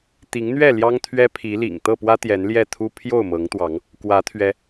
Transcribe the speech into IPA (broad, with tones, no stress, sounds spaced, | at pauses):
t̪ i˨˦ ŋ n̪ ɥ ɛ˥˨ l j ɑ˦ ŋ t̪ʰ ɥ ɛ˦ pʰ i˨˦ l ḭ˨˩ ŋ t̪ ɤ˥˨ p w ä˦ t̪ j ɛ˨˦ n l j ɛ˥˨ t̪ʰ u˦ pʰ j o˥˨ ʊ̯ m ɤ˨˦ ŋ t̪ w ɑ˨˦ ŋ | k w ä˨˦ t̪ʰ ɥ ɛ˨˦